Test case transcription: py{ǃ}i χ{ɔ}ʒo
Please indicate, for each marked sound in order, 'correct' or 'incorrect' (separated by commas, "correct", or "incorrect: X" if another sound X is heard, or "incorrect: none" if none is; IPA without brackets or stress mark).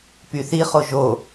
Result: incorrect: θ, incorrect: o